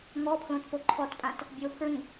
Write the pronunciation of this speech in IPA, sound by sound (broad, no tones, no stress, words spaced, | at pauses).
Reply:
ŋɔpʰlõtpo ǃʰɔtpʼãt | bʲopʰɹĩ